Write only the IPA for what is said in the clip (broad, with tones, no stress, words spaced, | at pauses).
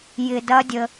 jɪ˧dɐ˦˥dʲə˧